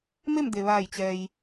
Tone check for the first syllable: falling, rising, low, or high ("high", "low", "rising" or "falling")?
falling